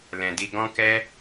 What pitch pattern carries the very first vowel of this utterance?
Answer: low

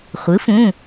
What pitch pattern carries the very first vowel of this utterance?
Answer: rising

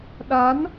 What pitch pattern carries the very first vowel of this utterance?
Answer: rising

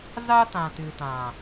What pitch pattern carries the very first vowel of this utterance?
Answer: high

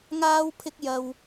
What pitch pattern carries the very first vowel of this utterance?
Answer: high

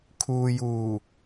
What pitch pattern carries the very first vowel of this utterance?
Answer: low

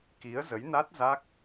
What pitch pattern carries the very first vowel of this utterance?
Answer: rising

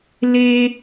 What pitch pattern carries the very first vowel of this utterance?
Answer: low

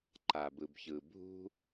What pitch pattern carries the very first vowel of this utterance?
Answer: low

